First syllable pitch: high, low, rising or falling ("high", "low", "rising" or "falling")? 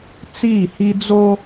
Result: falling